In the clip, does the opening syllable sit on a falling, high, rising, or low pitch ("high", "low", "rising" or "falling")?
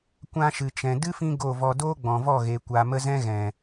high